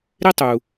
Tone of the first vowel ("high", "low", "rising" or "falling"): high